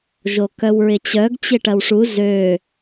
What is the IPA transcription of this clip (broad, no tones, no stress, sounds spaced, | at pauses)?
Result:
ʒ o k œ w ɹ ɪ t͡ɕ œ ɡ t͡ɕ ɪ ʈ ɐ w ʂ u z ø